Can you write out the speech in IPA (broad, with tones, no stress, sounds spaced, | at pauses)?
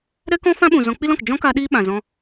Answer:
ɾ ɛ˦ k ɔ̃˦ f ã˦ ɓ ũ˨ z ɔ̃˧ k͡p i˦ l ɔ̃˨ k d͡ʒ ɔ̃˦ k a˧ ɗ iː˦ ɓ ã˨ z ɔ̃˧